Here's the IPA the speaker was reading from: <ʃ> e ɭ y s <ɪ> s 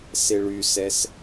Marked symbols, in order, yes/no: no, no

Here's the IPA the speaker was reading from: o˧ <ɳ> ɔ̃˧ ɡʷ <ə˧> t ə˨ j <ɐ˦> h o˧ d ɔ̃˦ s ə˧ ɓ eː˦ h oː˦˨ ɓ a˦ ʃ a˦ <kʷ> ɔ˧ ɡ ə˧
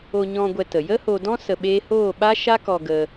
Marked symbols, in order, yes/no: no, no, no, no

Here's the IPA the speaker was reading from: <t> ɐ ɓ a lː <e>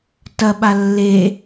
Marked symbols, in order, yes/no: yes, yes

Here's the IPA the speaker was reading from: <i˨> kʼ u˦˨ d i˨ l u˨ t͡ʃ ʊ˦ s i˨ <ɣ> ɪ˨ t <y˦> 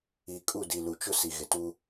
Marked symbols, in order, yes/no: yes, yes, no

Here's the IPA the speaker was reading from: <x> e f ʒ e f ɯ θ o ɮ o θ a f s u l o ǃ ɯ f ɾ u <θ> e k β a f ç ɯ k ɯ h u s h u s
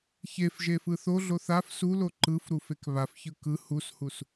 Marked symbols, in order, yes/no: no, no

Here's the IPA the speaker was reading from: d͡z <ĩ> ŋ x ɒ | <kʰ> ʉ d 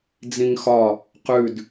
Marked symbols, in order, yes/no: yes, no

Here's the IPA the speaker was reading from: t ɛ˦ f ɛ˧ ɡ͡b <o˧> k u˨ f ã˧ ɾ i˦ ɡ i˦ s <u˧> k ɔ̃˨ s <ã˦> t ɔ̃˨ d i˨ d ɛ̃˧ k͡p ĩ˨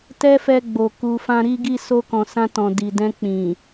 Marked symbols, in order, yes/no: no, no, no

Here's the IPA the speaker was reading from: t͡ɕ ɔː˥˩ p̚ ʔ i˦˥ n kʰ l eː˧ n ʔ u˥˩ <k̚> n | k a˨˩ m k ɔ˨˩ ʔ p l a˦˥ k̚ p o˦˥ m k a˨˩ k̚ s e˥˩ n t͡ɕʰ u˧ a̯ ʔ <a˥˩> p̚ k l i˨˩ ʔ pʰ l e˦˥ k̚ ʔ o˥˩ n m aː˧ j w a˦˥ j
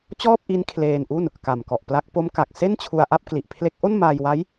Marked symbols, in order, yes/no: no, yes

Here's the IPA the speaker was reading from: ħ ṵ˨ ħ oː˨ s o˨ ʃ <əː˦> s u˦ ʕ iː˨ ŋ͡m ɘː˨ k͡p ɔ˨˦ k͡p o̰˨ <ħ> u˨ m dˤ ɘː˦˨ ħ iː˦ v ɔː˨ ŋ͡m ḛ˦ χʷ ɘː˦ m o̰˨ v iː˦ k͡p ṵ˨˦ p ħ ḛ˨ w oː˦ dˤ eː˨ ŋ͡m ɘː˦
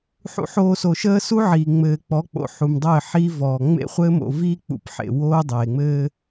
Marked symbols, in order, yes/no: yes, yes

